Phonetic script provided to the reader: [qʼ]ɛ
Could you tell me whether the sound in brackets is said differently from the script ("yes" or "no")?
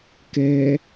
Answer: yes